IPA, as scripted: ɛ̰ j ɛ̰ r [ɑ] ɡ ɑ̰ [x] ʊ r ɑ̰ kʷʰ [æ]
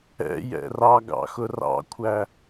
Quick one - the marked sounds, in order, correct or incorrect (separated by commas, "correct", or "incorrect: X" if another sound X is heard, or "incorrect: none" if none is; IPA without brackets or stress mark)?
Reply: correct, correct, correct